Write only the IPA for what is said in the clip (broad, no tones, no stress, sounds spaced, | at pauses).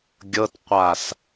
ɡʲ ɤ t qʷ a s